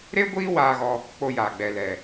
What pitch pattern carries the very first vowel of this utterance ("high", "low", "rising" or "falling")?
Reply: high